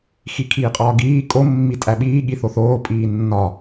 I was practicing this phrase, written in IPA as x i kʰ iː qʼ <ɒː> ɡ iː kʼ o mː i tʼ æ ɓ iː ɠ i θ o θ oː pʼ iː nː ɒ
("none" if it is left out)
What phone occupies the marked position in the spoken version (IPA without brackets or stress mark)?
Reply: ɒː